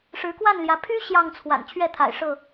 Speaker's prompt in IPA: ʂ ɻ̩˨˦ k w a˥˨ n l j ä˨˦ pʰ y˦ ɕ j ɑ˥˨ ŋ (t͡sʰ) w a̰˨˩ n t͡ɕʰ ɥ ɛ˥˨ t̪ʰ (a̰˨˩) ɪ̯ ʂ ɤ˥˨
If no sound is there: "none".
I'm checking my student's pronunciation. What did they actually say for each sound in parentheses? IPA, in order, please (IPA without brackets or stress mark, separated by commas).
t͡sʰ, a̰˨˩